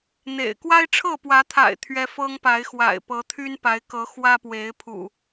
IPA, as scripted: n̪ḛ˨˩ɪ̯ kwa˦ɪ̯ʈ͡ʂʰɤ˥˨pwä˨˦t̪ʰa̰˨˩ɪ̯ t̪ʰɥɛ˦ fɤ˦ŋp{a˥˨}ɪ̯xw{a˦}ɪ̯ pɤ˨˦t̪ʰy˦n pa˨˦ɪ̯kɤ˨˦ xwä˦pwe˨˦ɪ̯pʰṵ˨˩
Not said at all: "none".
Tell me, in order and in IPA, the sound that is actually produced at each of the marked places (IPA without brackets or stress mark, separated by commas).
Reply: a˨˦, a̰˨˩